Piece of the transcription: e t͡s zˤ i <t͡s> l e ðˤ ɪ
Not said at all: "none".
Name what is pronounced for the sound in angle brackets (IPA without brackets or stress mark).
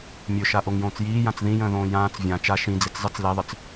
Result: t͡s